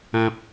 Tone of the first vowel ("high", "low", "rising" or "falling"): high